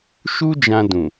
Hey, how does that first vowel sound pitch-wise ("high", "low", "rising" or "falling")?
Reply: high